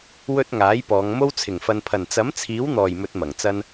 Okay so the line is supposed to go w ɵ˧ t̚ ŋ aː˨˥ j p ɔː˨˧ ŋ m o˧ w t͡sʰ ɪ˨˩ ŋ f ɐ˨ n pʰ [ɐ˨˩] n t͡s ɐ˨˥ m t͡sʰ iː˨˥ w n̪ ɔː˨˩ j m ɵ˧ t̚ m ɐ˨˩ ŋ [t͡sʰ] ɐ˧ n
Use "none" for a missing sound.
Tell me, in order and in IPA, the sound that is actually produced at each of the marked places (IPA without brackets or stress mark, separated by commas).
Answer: ɐ˨˩, t͡s